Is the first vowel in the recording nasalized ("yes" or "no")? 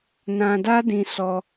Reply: yes